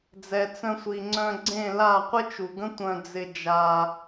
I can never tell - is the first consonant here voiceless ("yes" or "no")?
no